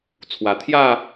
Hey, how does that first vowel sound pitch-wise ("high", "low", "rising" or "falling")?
low